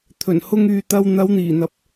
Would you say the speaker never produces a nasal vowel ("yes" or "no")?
yes